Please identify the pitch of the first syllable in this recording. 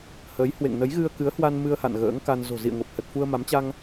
rising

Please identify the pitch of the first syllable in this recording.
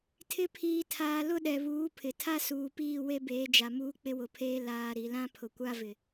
rising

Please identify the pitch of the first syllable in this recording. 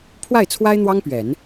falling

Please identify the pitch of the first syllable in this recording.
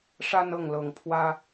high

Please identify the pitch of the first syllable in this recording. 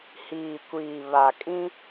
low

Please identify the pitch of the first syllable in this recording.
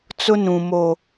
high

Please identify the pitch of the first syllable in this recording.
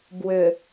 low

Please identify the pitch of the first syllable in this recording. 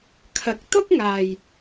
low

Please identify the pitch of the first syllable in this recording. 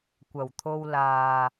low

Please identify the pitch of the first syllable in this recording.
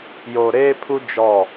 low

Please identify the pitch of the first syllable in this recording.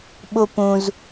high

